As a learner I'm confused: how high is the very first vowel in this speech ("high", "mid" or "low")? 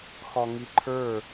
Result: low